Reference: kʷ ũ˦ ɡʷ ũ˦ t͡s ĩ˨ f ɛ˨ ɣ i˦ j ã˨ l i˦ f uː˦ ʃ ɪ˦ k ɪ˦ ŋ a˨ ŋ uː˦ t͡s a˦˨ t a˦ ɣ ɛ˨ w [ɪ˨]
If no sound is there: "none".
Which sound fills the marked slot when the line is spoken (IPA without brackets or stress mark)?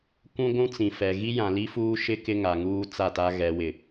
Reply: ɪ˨